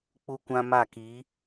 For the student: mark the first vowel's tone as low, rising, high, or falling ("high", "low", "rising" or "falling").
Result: high